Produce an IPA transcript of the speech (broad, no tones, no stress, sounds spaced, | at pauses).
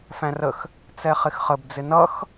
f æ̃ r ə x | t͡s ɛ χ ɪ x χ ə b d͡z ɪ n ʌ x